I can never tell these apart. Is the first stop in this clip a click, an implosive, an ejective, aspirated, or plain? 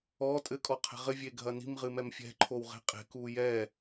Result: ejective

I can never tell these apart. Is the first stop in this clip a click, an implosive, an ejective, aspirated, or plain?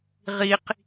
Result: plain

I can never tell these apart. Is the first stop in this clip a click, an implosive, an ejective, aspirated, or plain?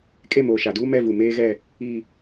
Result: ejective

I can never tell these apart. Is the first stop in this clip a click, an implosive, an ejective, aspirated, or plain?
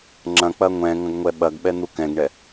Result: click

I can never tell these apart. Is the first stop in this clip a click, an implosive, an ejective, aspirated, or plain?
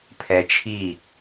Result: aspirated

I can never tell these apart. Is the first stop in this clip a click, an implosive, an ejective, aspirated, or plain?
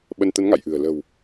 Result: implosive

